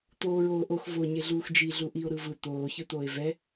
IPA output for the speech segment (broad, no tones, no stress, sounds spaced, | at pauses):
t̪ oː ɹ oː ʔ o x v o ɲ e ɮ uː x d͡ʒ i ɮ u ʔ i o̯ ɾ ɯ v ɯ t̪ oː ç ɯ t̪ oː e̯ v ɛ